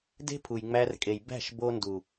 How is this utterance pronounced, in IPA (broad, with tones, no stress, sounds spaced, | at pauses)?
d e̤˦ pʰ u˨ j ŋ͡m æ˧ r kʼ e˨ j b æ̤˦˨ ʃ b o˧ n d u˨